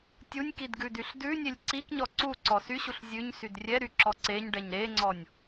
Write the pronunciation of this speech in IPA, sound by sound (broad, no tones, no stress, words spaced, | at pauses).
tʲunʲkidɡʉdyɬ dʉnʲelʲ ǀikɲɔ ǀuǀɔ syɕuɬ zʲʉɲsyd rʲɛɾyǁɔ ǀeɲɖɛɲ ɾeŋ͡ǀɔnʲ